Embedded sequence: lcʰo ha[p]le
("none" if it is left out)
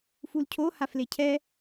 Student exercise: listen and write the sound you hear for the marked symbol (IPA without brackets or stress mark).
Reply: f